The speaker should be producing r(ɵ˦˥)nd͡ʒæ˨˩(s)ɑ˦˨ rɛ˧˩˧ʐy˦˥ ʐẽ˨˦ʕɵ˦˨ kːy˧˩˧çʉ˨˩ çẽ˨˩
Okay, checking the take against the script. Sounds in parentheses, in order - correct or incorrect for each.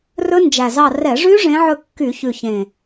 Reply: correct, incorrect: z

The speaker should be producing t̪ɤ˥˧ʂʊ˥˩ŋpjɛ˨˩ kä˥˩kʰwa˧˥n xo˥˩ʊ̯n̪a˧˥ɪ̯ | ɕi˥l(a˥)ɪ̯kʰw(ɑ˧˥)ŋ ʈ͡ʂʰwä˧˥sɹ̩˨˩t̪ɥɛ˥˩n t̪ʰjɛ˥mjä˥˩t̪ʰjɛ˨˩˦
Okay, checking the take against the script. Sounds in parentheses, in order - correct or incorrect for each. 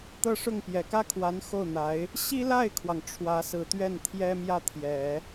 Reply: incorrect: a˥˩, incorrect: ɑ˩

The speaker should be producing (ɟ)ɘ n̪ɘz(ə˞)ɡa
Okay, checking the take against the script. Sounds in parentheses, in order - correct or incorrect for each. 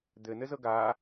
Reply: incorrect: d̪, incorrect: ɤ

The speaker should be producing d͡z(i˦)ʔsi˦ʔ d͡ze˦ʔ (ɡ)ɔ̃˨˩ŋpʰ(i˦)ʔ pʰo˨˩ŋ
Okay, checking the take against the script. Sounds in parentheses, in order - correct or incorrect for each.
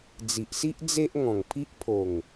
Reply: incorrect: i˨, incorrect: ŋ, correct

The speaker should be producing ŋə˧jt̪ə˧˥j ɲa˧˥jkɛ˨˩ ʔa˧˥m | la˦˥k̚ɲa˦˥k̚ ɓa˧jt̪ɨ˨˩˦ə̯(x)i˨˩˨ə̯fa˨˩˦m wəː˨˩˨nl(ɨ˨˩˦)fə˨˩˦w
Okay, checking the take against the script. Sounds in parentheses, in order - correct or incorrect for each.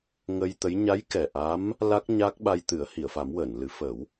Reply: incorrect: h, correct

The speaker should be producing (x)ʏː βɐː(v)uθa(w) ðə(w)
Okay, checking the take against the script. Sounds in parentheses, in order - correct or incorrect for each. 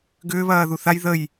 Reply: incorrect: ɡ, incorrect: ð, incorrect: j, incorrect: j

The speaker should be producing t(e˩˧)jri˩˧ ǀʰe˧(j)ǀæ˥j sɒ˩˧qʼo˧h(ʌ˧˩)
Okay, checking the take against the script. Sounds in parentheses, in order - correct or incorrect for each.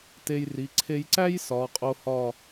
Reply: incorrect: e˧, correct, incorrect: ɒ˧˩

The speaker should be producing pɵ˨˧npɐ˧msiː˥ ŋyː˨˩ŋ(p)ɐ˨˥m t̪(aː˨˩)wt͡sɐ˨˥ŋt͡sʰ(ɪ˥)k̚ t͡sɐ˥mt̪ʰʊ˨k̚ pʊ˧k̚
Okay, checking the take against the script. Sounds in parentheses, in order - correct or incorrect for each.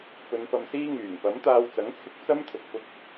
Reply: correct, incorrect: aː˧, incorrect: ɪ˧

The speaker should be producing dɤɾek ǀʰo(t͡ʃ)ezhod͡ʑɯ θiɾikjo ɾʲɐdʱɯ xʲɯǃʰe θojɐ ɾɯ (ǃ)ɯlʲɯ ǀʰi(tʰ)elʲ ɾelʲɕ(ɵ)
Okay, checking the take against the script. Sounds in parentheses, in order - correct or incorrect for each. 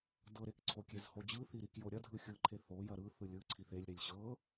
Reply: incorrect: kʲ, incorrect: θ, incorrect: θ, incorrect: ɤ

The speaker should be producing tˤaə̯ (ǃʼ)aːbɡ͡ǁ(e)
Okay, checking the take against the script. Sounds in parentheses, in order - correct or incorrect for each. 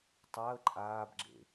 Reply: correct, incorrect: ḛ

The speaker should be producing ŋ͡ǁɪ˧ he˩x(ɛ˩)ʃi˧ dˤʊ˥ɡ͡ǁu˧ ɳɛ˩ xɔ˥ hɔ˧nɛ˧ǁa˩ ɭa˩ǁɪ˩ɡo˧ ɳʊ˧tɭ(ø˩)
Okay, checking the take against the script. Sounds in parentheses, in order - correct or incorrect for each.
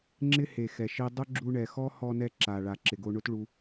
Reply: correct, incorrect: u˩

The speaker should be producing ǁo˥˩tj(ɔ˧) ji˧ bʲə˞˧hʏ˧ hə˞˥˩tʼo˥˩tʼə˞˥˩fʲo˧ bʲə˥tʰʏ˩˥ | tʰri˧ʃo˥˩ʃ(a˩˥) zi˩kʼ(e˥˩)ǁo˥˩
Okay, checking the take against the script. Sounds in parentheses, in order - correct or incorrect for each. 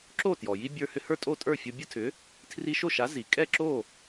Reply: incorrect: ɔ˩, correct, incorrect: ɛ˥˩

